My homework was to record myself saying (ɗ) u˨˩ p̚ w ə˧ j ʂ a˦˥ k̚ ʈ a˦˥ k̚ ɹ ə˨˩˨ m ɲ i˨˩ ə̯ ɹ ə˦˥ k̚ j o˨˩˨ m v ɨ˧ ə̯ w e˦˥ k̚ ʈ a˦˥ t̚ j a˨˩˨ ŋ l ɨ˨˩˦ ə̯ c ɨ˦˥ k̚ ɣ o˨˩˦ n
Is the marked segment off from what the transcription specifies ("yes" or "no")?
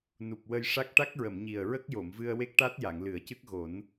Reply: yes